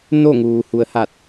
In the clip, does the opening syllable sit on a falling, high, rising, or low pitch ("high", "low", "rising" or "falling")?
falling